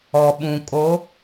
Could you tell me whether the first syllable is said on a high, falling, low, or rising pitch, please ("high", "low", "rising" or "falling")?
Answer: low